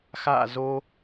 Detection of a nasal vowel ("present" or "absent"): absent